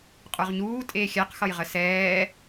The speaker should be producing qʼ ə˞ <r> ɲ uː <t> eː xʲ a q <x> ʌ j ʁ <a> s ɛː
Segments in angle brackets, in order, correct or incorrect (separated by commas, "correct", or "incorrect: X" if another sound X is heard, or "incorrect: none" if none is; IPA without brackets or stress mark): incorrect: ʁ, incorrect: tʼ, correct, incorrect: ə